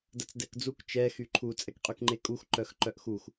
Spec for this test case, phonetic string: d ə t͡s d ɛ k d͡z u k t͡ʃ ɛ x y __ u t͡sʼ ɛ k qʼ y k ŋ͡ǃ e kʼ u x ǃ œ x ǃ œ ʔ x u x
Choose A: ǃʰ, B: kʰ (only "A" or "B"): A